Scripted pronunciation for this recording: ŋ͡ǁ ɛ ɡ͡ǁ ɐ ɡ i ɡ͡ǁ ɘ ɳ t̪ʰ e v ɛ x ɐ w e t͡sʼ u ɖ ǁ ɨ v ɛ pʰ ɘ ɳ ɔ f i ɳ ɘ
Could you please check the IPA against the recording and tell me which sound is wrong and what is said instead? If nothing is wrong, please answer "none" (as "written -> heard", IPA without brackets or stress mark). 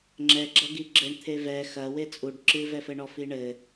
pʰ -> f